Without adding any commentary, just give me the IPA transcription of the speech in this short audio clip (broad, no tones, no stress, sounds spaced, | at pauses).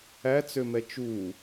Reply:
æ t͡s ø m ɛ t͡ʃ u